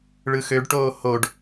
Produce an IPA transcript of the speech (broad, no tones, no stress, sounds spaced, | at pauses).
ɭ ɯ x ø ɖ ʈ oː h o ɖ